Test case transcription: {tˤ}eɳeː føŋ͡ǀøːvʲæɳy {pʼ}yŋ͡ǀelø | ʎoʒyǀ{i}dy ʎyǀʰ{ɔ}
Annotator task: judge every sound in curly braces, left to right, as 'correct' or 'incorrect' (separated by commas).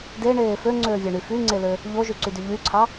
incorrect, incorrect, incorrect, incorrect